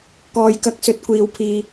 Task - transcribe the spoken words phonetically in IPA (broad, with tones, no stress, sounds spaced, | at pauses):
k ɔː˨ j k ɐ˧ k̚ s ɵ˨˥ t̚ kʷ iː˨ w pʰ iː˨